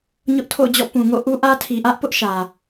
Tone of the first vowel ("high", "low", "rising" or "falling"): high